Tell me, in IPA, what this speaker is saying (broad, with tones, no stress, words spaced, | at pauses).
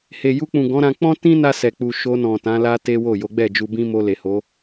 he˨ju˧k͡pũ˨ ɡɔ̃˨˦ɾã˧ k͡pɔ̃˦tĩ˦na˧ sɛ˨k͡pu˨ ʃo˧nɔ̃˨ tã˨˦la˦te˦wo˦˨ jo˨˦ɡ͡bɛ˦˨d͡ʒu˧bĩ˦ mo˧le˨ho˨˦